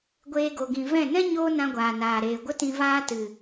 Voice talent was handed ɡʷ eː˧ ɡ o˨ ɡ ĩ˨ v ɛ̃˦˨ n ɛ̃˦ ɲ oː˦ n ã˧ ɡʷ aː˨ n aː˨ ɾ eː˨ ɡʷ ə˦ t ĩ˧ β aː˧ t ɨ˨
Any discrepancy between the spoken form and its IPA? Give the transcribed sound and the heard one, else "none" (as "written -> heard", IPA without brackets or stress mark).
β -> v